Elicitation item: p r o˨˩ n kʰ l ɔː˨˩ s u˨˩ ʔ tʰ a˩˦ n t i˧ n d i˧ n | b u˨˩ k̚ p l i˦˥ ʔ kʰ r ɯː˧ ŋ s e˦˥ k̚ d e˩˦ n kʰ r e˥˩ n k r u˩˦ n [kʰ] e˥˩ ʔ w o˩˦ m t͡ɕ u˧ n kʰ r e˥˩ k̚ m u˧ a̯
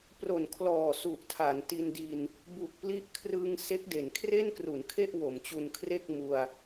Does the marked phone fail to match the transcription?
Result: no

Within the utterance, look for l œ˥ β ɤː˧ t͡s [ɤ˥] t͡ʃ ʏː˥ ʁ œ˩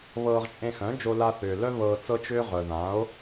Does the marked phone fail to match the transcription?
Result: no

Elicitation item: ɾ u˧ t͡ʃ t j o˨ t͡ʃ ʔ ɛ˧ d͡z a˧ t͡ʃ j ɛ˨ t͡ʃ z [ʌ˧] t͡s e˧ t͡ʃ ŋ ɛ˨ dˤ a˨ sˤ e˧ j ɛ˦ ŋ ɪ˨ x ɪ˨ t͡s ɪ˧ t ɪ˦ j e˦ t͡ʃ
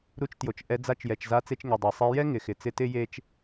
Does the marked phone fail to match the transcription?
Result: yes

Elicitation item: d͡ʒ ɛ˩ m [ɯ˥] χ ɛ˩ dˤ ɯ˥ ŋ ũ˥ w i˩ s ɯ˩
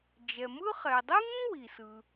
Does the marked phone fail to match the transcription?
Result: no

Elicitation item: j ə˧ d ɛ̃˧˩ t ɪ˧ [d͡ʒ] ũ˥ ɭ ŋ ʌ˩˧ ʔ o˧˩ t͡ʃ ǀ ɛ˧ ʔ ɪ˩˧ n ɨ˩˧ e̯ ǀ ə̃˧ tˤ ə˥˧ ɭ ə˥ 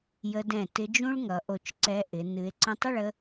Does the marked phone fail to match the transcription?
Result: no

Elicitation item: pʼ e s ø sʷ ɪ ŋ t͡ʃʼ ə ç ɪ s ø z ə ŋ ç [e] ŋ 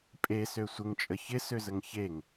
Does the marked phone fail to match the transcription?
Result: no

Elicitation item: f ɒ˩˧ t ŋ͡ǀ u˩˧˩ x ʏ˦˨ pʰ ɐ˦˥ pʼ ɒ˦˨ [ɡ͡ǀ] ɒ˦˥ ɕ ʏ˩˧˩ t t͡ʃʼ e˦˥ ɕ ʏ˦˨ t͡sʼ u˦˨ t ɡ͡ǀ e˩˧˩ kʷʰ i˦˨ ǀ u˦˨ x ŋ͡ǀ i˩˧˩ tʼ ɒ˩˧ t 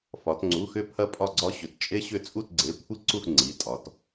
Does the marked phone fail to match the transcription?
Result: no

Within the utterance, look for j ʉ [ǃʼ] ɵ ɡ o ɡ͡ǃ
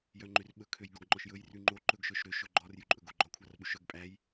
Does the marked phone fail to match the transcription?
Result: no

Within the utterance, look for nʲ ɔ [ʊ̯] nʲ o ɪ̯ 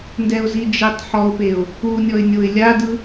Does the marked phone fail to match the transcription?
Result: yes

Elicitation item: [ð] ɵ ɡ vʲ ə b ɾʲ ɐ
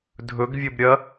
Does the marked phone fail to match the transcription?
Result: yes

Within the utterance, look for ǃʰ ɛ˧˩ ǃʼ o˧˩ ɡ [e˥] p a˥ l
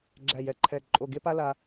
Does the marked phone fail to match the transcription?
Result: no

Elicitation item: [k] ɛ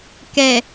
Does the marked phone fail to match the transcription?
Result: no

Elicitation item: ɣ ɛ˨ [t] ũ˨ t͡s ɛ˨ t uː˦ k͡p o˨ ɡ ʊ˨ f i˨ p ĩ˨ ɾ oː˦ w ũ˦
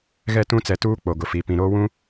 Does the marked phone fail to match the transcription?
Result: no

